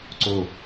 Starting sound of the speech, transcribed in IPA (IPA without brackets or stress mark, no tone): ǀ